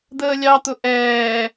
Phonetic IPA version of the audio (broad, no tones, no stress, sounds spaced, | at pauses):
d̪ əː lʲ ɑ t̪ ʊ ʔ ɛː